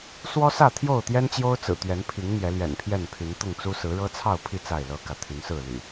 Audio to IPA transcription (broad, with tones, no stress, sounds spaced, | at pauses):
s w ɔ˦ s ä˥˨ t̪ʰ j o˥˨ ʊ̯ t̪ j ɛ˦ n t͡ɕ j o˦ ʊ̯ t͡s ɹ̩˨˩ t̪ ɥ ɛ˨˦ n pʰ i˨˦ ŋ n̪ j ɛ˨˦ l ɥ ɛ̰˨˩ n pʰ j ɛ˥˨ n pʰ y˨˦ n t̪ ʊ˥˨ ŋ t͡s u˦ s ɹ̩˨˦ ɻ ɤ˦ t͡sʰ ɑ˥˨ ʊ̯ pʰ i˥˨ t͡s a˥˨ ɪ̯ l ɤ˦ k ä˨ t̪ʰ y˨˦ n s ɹ̩˥˨ l y̰˨˩